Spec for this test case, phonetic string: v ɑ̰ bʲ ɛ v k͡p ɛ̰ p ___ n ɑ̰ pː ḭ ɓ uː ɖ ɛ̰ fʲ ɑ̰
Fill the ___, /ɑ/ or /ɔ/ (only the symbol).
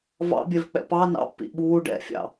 ɑ